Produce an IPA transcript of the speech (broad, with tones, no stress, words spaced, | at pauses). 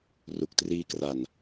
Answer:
ru˨˩k̚triː˦˥kra˨˩n